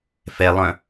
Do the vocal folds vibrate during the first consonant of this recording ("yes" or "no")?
no